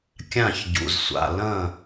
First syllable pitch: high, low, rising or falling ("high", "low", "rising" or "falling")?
falling